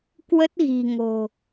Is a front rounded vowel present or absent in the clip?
absent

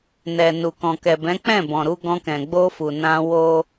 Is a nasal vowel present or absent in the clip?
present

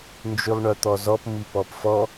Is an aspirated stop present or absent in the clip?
absent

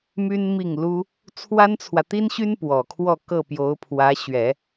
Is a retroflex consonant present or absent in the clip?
absent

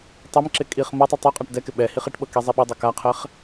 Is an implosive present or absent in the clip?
present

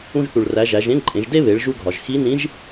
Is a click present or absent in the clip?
present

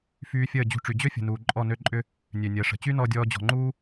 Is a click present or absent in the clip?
present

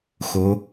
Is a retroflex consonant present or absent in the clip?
absent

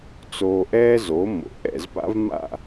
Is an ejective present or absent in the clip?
absent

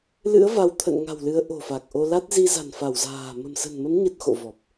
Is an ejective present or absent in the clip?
absent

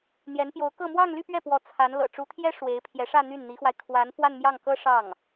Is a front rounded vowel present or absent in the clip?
present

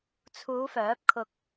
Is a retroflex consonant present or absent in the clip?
absent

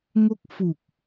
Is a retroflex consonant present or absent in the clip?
absent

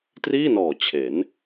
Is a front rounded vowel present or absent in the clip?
absent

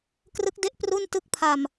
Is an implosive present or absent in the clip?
absent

